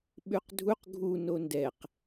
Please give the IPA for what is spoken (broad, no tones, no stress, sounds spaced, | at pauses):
ɓ ʉ q dʱ u q ɡʱ u n o n d ɛ q